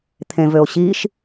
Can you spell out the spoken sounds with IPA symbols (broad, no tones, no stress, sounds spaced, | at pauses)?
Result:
t̪ʰ ẽ v ø o̯ ɕ i ʃ